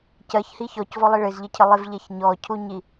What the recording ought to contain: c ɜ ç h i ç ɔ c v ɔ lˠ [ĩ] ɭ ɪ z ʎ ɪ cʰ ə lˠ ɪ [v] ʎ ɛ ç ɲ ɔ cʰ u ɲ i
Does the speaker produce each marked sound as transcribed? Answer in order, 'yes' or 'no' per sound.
no, yes

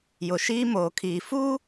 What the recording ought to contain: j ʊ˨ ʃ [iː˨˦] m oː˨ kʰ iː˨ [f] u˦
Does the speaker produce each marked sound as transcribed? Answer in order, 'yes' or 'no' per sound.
no, yes

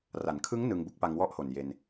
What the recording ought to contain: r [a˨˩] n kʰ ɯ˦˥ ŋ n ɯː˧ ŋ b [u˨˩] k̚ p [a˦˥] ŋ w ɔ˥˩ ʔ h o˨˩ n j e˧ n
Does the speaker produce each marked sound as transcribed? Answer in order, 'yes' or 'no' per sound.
no, no, no

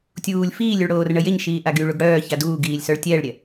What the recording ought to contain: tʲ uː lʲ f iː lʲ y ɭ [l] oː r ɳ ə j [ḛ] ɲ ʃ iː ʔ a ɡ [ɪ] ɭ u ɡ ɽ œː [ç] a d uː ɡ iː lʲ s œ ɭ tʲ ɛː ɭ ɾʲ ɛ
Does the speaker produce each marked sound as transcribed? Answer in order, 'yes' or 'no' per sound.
no, no, no, yes

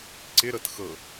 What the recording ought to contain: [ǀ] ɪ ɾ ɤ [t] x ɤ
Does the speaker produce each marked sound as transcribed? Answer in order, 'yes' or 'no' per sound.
yes, yes

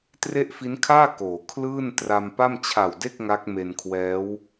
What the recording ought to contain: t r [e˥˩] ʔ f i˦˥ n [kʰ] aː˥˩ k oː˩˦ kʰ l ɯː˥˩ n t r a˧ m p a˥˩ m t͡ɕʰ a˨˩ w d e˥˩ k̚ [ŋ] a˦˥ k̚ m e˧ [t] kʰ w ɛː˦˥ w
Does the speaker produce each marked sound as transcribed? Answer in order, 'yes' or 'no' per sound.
yes, yes, yes, no

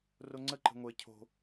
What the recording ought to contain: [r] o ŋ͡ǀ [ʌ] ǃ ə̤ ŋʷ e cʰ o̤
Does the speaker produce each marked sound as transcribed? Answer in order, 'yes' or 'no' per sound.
yes, no

